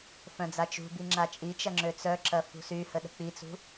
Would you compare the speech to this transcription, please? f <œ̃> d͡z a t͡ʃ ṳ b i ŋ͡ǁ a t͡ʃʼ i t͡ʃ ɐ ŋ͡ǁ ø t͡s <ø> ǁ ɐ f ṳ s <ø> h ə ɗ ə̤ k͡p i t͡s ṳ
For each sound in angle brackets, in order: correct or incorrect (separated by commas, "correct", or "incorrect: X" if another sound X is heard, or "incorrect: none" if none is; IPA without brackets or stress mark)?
correct, incorrect: œ, incorrect: y